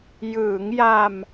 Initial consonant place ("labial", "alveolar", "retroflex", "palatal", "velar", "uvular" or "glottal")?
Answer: palatal